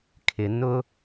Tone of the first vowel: low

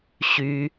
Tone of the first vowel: low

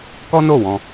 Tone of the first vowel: high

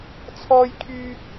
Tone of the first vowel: high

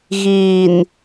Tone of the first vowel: low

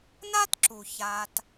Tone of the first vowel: high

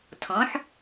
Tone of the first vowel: rising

